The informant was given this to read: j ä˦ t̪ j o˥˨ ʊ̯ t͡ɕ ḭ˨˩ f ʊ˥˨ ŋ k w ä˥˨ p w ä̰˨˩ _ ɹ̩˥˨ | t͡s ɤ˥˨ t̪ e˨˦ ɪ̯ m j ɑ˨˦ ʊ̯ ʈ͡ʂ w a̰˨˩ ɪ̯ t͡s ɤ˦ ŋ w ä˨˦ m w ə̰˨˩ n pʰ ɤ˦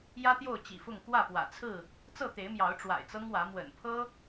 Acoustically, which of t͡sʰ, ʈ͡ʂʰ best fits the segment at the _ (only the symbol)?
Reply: t͡sʰ